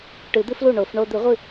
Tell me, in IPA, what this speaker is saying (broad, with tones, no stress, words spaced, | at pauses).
ʈɨ˨˩˦d̪ɨ˥flu˥˩ ɳo˨˩˦fɳo˥ d̪ɨ˨˩˦ʁʷɨ˥˩